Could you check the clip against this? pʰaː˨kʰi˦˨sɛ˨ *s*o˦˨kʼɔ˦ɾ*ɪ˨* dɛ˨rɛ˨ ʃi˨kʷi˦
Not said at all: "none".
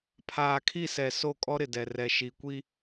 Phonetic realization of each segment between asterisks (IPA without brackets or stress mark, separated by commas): s, ɪ˨